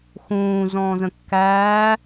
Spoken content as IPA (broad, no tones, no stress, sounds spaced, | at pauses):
x ũː z ɔ̃ː z ə̃ kː æː